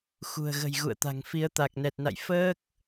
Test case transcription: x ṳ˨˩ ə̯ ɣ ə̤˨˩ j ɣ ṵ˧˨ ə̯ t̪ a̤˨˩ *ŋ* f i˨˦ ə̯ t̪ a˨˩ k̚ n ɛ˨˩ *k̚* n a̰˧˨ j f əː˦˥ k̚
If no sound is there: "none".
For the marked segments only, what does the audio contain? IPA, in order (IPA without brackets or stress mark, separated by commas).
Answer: ŋ, t̚